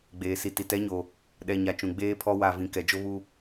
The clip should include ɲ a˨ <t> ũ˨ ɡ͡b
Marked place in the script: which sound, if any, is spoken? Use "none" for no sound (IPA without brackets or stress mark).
t͡ʃ